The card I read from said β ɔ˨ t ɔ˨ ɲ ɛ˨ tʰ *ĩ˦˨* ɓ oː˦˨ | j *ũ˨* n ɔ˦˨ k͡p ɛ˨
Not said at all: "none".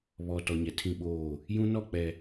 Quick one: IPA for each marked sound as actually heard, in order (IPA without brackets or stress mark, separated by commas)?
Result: ĩ˦˨, ũ˦